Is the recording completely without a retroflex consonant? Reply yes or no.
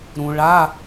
no